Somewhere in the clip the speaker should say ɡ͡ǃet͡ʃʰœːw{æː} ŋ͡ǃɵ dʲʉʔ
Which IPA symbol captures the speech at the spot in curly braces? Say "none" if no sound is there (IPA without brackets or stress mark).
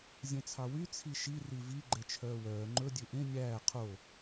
œː